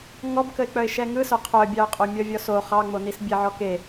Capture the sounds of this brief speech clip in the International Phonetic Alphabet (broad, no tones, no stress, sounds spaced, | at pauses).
ŋ ɔ b k ə ɪ̯ k͡p œ ɪ̯ ʃ ɛ ŋ ɯ s œ qʰ œ bʲ ɑ ʊ̯ qʼ o mʲ ɔ vʲ ɔ s o χ ɑ ŋ͡m o n i s bʲ e ʕ ɔ k e